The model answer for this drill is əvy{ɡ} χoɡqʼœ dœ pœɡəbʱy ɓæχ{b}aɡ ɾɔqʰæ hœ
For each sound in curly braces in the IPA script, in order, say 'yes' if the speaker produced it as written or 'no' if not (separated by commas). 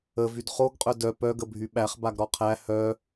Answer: no, yes